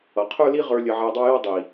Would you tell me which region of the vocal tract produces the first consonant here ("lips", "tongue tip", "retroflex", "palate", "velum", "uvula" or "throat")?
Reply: uvula